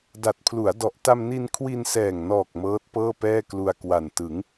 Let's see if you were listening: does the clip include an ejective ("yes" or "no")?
no